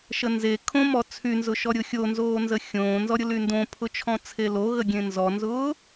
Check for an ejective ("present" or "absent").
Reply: absent